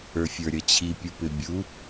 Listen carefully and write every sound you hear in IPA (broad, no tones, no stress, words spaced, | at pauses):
ə˞fʲə˞ɾʲʌt͡ɕʰi pʲupɪbʲu